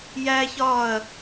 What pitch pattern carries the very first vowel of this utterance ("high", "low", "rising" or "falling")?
high